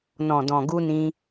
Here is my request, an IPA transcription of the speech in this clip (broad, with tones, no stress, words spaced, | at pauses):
nɔ̃˨dɔ̃˨ ɡu˧nĩ˧